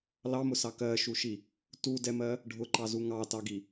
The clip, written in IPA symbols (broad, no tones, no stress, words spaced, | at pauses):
lɑmʊsɑ kɜʃuʃi | tudɛmɜ | ɖʱʊǃɑzu ŋɑtɑɡi